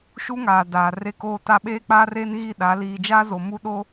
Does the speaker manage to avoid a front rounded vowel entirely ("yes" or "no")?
yes